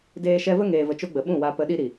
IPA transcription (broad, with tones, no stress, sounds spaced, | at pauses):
d eː˦ ʃ ɛ˦ v ə˦ ŋ eː˨ v ə˨ t͡ʃ o˧ ɡ͡b ə˨ ɓ ũ˦˨ w a˧ p ə˧ ɗ i˦ ɾ i˨